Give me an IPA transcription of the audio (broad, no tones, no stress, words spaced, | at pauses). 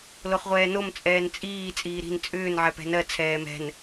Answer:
loχʁʷɛːnom t͡sʼɛːnt͡sʼiː t͡sʼiːɾi̤n t͡sʼʏːn ʕɛpɛ̤nɜ t͡sʰɛːmɛ̤n